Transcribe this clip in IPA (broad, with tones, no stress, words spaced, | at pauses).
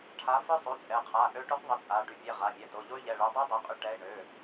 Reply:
ʈʰa˨˥ fœ˦˥sˤu˩˧˩ t͡sʼɛ˩˧˩qʰa˩˧˩ ʔø˦˥ʈu˦˥qðˤə˨˥t͡sʼa˩˧˩ ɖy˩˧˩pʲɛ˩˧˩ ʁa˩˧˩mʲɛ˩˧˩to˩˧˩ ʎo˦˥y̯ʎɛ˩˧˩ɭœ˨˥ dˤɛ˦˥dˤe˩˧˩qʼy˨˥ ʈɛ˩˧˩i̯ɳø˩˧˩